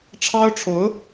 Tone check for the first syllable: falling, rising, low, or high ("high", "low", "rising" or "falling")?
high